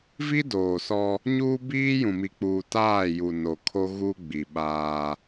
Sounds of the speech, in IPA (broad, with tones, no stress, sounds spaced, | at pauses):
v i˦ d oː˨ s ɔ˦ | ɲ uː˦ b iː˦ j ũ˨ m i˨ k͡p uː˨ t aː˦˨ j u˨ n o˨ kʰ o˦ ɣ uː˦ ɡ͡b i˨ ɓ aː˦